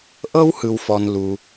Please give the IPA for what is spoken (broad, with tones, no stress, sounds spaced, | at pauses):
ʔ ɤ˥ w h ɯ˩ w f ɔ˩ n l u˩